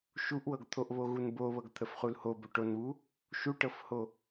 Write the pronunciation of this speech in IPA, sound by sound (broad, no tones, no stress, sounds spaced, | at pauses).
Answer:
ʃ u ʔ w ɤ ɡ t̪ʰ o ʔ β o ɣ u n b o β ɤ ɡ t̪ʰ ə f χ u l h o b o ʈ o n β u | ʃ u ʈ ɤ f h o